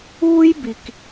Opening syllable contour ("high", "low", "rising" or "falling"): high